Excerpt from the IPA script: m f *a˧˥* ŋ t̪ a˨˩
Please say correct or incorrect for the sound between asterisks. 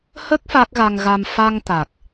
incorrect